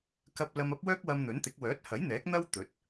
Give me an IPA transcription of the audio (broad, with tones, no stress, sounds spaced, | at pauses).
k ɐ˧ p̚ l ɐ˧ m ɐ˥ p̚ w œː˥ k̚ w ɐ˧ m n̪ ɵ˨˥ n t̪ ɪ˨˥ k̚ w œː˨˥ t̚ h ɐ˨˥ j n̪ ɛː˨˥ k̚ n̪ ɐ˥ w t̪ ɵ˨˥ t̚